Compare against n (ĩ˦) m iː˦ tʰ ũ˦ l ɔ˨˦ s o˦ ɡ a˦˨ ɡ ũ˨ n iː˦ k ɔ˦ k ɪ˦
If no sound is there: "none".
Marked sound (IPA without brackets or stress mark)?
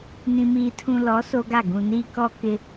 ĩ˦